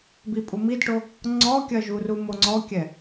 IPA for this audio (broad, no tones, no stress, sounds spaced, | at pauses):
b i pʼ u m i d ʈ o | ŋ͡ǀ ɔ kʲ ɐ ʒ u r u m o ŋ͡ǀ ɔ kʲ ɛ